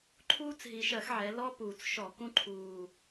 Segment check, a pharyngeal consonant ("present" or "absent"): present